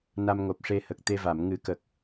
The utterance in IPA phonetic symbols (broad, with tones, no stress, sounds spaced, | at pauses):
n a˧ m ŋ o˨˩ p̚ ʂ e˧ h ə˨˩ k̚ t̪ e˧ v a˨˩˨ m ŋ ɨ˨˩˦ k ə˨˩ k̚